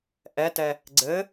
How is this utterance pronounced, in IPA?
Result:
ʔ ɛ t ɛ | ɡ͡ǀ ɘ

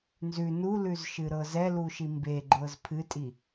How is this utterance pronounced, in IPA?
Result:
n z ʉ n u l ʉ z ʃ ɨ ɾ ɤ z ɛ l u ʃ i m b e ɡ͡ǃ ɤ z pʰ ɨ tʼ i

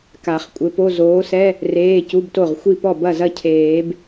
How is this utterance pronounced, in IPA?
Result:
k a˨˩˦ χ kʷʼ ɘ˨˥ p o˧˥˧ z oː˨˥ s ɛ˧˥˧ | r eː˧˥˧ c u˧˥˧ b t o˥˩ ʁ xʷ i˥˩ p ɔ˥˩ b ɐ˥˩ z ɐ˥˩ cʰ eː˨˩˦ b

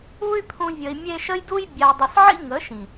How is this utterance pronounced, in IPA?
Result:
u˦ y̯ pʰ ũ˧ vʲ ə˧ i̯ mʲ e˦ ʃ ə˦ j d u˦ j bʲ a˧ u̯ dˤ ə˧ s ʕ ḭ˦ ŋ ə˨˦ ʃ ĩ˨

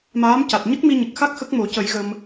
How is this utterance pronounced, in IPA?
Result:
m aː˧˥ m c a˨˩ t̚ ɲ ə˦˥ k̚ m i˧ ɲ ə˨˩ k̚ x a˦˥ k̚ x ə˦˥ k̚ m o˨˩˦ c ə˨˩˦ j ɣ ə˧ m

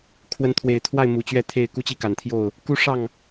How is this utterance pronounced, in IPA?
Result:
kʰ w ə˨˦ n t̪ʰ w e˨˩ ɪ̯ t̪ʰ w a˥˨ ɪ̯ m u˨˩ t͡ɕ ɥ ɛ˥˨ t̪ʰ e˥˨ ɪ̯ k u˦ t͡ɕ i˥˨ k a˨˩ n t̪ʰ j o˥˨ ʊ̯ | k u˦ ʂ ɑ˥˨ ŋ

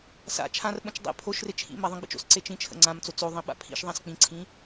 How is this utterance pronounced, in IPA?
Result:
s a̰ t͡ʃʰ ã r ɓ ə̃ t͡ʃ dˤ ḛ pʰ o ʃ r e t͡ʃʰ ḭ m a ðˤ ə̃ ɡ͡b ḭ t͡ʃ o̰ s ǀ e t͡ʃ ĩ t͡ʃʰ ə̰ ŋ͡ǀ ã m t͡s o t͡s o ðˤ ĩ ɓ a̰ pʰ ḭ ʃ ðˤ ã s k͡p ĩ ǀʰ ĩ

